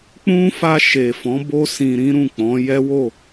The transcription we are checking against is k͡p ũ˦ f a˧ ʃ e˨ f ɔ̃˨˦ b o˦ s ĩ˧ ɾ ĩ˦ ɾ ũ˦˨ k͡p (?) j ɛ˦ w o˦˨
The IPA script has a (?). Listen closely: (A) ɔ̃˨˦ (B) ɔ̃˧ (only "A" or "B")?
A